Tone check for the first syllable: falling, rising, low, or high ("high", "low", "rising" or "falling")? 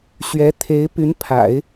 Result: rising